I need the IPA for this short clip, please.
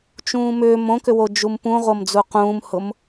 t͡ʃ ũː m ʏː m õ k ʏ w o d͡ʒ u m p ũ ʁʷ ɤ m d͡z u q ũː m h ʊ m

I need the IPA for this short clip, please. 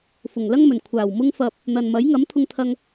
f ʊ˨˩ ŋ l ɐ˥ ŋ m ɵ˨˩ n kʷʰ aː˨˩ w m ʊ˧ ŋ f ɐ˨ p̚ | n̪ ɐ˨ n m ɐ˨˥ j ŋ ɐ˨˥ m t̪ʰ ʊ˧ ŋ t̪ʰ ɐ˧ ŋ

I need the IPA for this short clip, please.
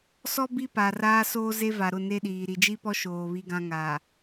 s ɔ˦ b i˦ p a˨ r aː˦ s oː˦ z e˦ v a˨ ɾ ʊ˦˨ n e˦ ɗ iː˨ ɾ i˨ d͡ʒ i˦ p ɔ˦ ʃ oː˨ β i˦ ɡ ã˦ ŋ aː˨

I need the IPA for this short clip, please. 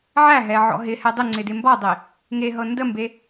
ʕ æ ɦ ɛ ʕ ɔ̰ ɦ ɪ h ɛ dˤ ɪ ŋ͡ǀ ɪ d ɪ m b ɔ dˤ e | ŋ e ɦ ɤ n d ə m b e

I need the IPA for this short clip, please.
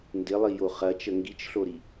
n d ɪ lˠ i j o χ ɐ t͡ʃ ə ŋ ɡ i t͡ʃ ɬ o ɾ i

